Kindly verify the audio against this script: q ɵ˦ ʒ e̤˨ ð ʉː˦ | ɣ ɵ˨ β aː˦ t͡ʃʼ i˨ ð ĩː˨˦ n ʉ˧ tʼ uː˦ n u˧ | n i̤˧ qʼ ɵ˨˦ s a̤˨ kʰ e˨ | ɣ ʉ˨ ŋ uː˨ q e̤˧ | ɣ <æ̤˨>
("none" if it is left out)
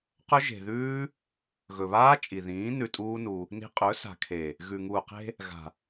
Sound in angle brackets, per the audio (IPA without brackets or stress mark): a̤˨